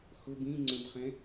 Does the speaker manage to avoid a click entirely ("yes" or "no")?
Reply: no